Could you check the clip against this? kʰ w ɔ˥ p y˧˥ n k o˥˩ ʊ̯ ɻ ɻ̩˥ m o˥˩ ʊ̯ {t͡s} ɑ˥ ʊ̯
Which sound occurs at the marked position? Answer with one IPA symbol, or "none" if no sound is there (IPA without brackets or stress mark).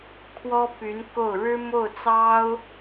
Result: t͡s